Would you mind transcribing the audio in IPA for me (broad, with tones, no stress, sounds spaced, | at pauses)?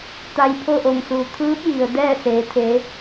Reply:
t̪ a˧ j pʰ o˥˨ ʔ o˧˩ ŋ s uː˩ t̪ʰ ɯː˧˥ p̚ j i˩ ə̯ d ɛː˥˨ s eː˩˧ t̪ʰ e˩˧